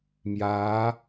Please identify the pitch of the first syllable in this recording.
rising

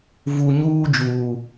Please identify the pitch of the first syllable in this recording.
low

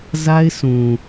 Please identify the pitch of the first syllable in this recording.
high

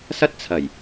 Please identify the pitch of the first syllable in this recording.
high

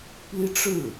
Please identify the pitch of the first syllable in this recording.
high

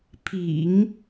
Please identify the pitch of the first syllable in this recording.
low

